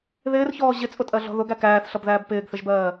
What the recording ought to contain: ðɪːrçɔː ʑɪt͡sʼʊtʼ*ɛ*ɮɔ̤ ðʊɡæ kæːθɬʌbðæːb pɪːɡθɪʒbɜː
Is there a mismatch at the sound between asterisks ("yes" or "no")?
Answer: yes